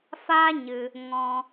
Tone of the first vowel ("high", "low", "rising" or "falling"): high